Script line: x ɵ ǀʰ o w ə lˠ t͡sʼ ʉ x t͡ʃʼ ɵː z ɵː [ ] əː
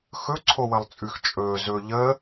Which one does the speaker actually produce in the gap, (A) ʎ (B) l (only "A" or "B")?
A